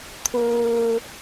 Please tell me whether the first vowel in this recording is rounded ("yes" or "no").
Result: yes